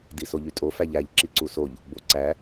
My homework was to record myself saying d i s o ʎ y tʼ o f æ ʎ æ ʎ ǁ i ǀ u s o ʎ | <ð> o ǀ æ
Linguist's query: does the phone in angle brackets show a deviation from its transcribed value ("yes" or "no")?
yes